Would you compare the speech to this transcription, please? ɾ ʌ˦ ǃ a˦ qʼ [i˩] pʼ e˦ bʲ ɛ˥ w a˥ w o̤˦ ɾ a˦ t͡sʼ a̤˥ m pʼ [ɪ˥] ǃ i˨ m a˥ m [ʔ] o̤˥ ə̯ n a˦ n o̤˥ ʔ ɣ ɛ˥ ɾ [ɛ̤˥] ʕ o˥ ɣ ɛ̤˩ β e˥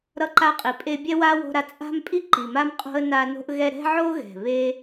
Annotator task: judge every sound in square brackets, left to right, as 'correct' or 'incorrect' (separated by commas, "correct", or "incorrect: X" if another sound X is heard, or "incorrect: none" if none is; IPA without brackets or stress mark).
correct, incorrect: i˥, incorrect: qʼ, correct